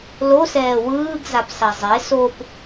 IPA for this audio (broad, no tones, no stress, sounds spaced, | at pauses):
l o s ɛː w ɯː ɡ z a p s a zˤ e s o p